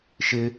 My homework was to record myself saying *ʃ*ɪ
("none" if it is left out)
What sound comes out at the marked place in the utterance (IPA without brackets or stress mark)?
ʃ